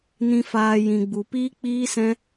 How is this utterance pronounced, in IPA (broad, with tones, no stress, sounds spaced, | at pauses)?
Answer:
n ĩ˨ f aː˨ j ĩ˨ ɡ͡b u˨ p iː˦ k͡p iː˦ s ɛ̃˦